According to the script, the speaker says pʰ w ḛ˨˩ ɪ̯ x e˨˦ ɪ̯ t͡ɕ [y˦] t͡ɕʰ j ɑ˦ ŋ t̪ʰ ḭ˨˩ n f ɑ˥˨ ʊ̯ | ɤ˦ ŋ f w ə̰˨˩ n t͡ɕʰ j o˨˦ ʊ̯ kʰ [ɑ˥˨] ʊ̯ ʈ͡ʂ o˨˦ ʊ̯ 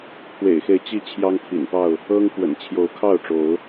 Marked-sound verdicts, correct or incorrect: incorrect, correct

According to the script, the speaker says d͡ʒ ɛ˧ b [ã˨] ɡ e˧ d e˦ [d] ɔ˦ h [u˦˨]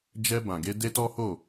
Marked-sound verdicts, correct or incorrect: correct, incorrect, incorrect

